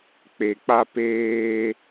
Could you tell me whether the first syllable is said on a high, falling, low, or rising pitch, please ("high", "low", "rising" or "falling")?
low